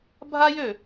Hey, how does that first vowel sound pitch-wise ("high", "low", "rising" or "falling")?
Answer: high